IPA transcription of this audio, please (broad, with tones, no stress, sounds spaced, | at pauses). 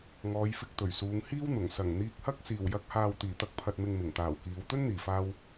ŋ ɔː˨˧ j f ɪ˧ k̚ t̪ ɵ˨˩ ɥ s uː˨˧ ŋ h iː˥ w n̪ ʊ˨˩ ŋ s ɐ˨˩ ŋ n̪ iː˧ k̚ h ɐ˥ k̚ s iː˨˩ w j ɐ˨˥ k̚ h aː˨ w t̪ iː˨˩ t̪ ɐ˧ k̚ pʰ ɐ˨ t̚ m ɪ˨ ŋ m ɪ˨˩ ŋ t̪ aː˨˩ w k iː˨˧ w t̪ ɵ˥ n n̪ iː˨˩ f aː˧ w